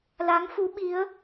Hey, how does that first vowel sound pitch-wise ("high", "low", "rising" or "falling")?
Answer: rising